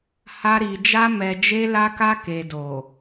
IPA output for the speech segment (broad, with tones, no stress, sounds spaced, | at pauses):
h a˧ ɾ i˨ d͡ʒ a˧ m ɛ˨ d͡ʒ e˧ l a˧ k a˧ k e˨ d o˨